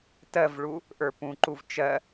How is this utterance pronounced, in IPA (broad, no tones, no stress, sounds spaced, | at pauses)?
t ɜ v ɭ u | ʔ ə˞ p ũ ǃ u v t͡ʃ ɜ